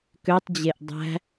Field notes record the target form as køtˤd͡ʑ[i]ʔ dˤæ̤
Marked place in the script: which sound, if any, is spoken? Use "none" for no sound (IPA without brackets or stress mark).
e